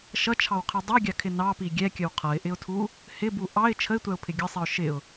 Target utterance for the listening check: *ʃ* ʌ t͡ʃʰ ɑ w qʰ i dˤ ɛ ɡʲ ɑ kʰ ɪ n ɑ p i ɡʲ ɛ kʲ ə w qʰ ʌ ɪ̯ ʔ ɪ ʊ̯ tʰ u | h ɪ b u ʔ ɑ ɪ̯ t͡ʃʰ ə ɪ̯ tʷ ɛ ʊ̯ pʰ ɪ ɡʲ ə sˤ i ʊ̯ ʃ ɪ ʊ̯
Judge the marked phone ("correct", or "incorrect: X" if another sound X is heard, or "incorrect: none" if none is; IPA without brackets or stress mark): correct